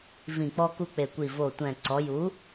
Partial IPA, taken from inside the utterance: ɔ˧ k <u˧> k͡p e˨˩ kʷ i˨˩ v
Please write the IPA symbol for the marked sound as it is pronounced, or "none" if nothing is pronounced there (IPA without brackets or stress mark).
u˧